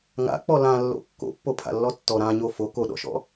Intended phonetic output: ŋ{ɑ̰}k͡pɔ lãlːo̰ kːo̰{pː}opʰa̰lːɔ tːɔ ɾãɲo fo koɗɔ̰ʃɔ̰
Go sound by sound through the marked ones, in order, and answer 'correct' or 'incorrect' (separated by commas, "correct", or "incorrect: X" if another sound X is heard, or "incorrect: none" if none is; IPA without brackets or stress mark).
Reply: incorrect: a̰, correct